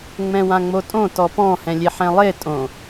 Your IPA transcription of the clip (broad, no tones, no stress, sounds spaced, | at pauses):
ŋ͡m ɛ̃ w ã ŋ͡m o tʼ õ t ɔ p ɔ̃ h ɛ̃ lʲ e ħ ɛ̃ lˠ e tʼ õ